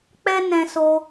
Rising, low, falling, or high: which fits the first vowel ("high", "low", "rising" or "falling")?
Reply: high